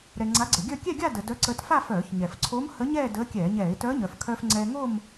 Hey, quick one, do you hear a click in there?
yes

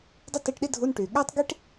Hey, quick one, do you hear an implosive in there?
yes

